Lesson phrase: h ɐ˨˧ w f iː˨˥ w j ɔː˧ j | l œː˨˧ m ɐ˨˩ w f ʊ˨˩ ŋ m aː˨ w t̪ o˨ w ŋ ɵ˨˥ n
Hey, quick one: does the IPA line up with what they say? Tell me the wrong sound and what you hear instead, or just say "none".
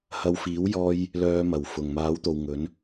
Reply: aː˨ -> aː˨˥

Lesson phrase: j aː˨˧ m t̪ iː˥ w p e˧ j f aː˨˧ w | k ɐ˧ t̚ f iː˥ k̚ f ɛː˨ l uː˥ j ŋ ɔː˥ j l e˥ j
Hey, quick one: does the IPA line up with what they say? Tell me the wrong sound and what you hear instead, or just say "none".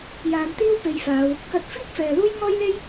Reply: none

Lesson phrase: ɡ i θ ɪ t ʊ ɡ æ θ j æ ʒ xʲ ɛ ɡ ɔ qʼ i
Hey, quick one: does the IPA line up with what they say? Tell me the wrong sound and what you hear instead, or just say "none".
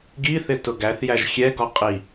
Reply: none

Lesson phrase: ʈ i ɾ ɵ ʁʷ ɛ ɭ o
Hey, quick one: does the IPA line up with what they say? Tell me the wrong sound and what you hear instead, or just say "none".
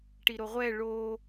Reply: ɵ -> o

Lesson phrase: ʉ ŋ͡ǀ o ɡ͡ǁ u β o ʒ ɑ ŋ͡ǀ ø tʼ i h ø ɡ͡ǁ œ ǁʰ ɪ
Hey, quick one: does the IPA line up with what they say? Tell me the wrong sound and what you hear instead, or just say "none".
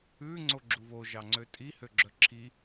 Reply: ɪ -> i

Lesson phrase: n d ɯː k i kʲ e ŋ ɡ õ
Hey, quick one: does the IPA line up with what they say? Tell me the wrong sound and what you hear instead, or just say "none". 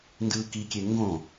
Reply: none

